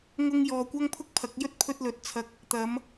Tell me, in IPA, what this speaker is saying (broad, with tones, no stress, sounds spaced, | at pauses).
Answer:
ŋ ʊ˧ ŋ j ɔː˨ kʷ ɐ˥ ŋ pʰ ʊ˥ k̚ pʰ ɐ˨˥ k̚ j ɵ˥ t̚ pʰ ɵ˧ t̚ l ɵ˨˥ t̚ t͡sʰ ɐ˧ k̚ | t̪ ɐ˨˧ m